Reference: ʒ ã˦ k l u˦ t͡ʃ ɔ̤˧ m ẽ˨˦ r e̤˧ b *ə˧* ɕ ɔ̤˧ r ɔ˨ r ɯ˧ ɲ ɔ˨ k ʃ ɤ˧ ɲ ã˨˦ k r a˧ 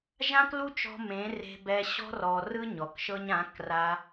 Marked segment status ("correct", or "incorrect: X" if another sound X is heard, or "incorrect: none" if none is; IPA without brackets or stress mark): incorrect: ɛ˧